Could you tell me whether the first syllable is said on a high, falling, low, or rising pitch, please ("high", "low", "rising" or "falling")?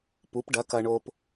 rising